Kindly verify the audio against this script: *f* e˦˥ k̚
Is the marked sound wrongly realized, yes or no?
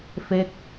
no